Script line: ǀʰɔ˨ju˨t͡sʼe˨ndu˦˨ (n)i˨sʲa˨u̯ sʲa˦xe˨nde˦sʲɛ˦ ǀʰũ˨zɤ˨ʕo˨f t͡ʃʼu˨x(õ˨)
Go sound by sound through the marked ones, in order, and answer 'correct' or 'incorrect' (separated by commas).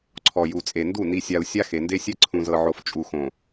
correct, correct